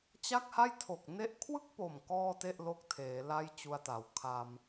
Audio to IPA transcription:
t͡ɕ a˥˩ k̚ h a˥˩ j tʰ o˨˩ k̚ n e˥˩ ʔ kʰ w ɯ˥˩ k̚ p o˨˩ m k ɔː˥˩ t e˥˩ ʔ l o˦˥ k̚ tʰ eː˩˦ l a˥˩ j t͡ɕ u˧ a̯ t a˩˦ w kʰ a˧ m

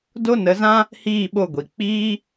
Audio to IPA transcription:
d o˦ n ə˨˦ z ã˦ | h iː˦˨ ɓ o˦˨ ɡʷ i˨ k͡p iː˧

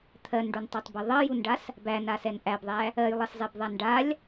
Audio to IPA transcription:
t̪ʰ ɜ n ɖ u n tˤ a tˤ b ɜ ðˤ ɜ j u n ɖ a s | b æ n a s ɛ n ʔ æ b ðˤ æ | ɜ j lˠ ɜ s zˤ ɛ b ðˤ a n ɖ a lʲ

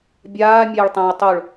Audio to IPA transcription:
bʲ aː mʲ ɛː ɭ tˤ ɛ̃ ɐ̯ tˤ o ɭ

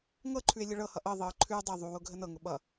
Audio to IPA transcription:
ŋ ɤ ǃʰ ʉ e̯ lʲ ə ɭ ɤ h ʌ ʔ ɤ ðˤ ɤ ǃʰ ʉ dˤ ʌ ðˤ u w ʊ ɡʱ ə n ɤ ŋ ʊ ɓ ʌ

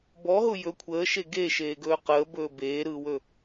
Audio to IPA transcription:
b ɔ ɦ ʊ j ɵ kʷʰ əː ʃ e ɡ e ʃ eː ɡ ɵː q əː b ɵː b eː ɾ ɯː w ɵ

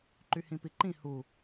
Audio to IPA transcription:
ǃ y h ĩ p i ǃ ĩ h u

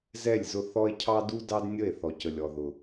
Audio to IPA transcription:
z ɛ˦˨ lʲ z ʊ˦ θ ɔ˦ e̯ cʰ ɑ˦ d u˦ d ɑ˦ d nʲ ə˦˨ e̯ θ ɔ˨ c ə˨ lʲ ɔ˨ ð ʊ˨

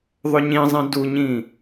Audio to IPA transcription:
ðˤ ɵ ɲ ĩ zˤ ĩ d u ɲ ĩ

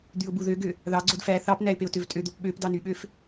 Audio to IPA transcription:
d̪ y ʊ̯ b u ð ø ɡ ø | ð ɑ ɡ͡ǀ o d f æ θ ɑ p n æ ɪ̯ p e ʊ̯ t ø v tʼ ø d̪ o p ɓ ø p d ɑ n y ɓ ø f

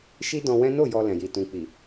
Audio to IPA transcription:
ʃ i˦ d ɔ̃˧ w ɛ̃˦ n o˦˨ j ɔ˧ l ɛ̃˨ j i˨ t ũ˨ k͡p i˨

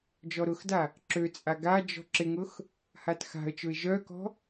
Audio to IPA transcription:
d͡ʒ ɔ ɾ ʊ x d a | ǁ ø t͡sʼ a ɡ a d͡ʒ ɔ̤ ǁ ɪ ŋ ʊ x | h a t x a̤ ə̯ t͡ʃ ʊ ɪ̯ ʒ œ k ɔ̤

